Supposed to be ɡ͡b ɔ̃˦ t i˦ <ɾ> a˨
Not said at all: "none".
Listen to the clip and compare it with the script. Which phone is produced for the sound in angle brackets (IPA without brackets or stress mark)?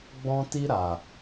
ɾ